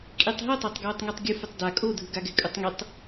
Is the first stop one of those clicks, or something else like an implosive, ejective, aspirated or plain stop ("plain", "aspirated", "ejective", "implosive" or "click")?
ejective